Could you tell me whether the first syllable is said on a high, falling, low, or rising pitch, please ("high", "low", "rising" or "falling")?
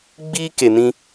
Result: high